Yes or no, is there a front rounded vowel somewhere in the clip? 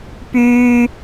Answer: yes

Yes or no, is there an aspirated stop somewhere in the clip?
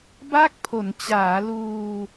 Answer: yes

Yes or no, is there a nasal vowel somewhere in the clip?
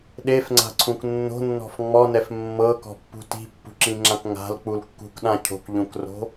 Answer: yes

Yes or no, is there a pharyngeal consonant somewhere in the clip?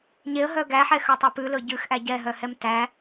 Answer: yes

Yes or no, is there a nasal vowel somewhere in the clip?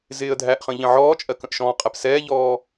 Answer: yes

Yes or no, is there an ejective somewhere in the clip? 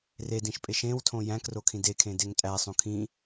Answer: yes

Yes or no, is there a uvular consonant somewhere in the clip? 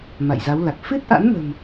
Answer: no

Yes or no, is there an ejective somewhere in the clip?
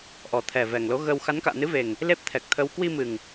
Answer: no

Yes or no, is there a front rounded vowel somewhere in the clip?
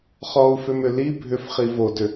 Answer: yes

